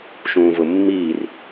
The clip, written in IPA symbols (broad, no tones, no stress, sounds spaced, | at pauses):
ʃ ũː v ʊ mː iː r